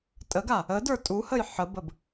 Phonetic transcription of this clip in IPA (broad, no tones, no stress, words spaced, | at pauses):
tʼəɡa | ə də˞tʼuhəj ħəbəb